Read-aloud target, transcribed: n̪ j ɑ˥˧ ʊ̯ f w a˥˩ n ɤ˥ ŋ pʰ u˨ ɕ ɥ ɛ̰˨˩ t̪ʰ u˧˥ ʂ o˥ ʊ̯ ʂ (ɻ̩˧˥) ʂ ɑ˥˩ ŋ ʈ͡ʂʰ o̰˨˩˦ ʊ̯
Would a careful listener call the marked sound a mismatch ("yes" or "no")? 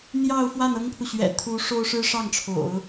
yes